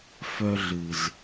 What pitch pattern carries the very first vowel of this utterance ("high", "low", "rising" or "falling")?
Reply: high